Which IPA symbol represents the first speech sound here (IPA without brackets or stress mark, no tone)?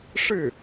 ʂ